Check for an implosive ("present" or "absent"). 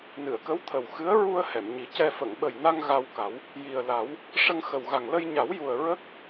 present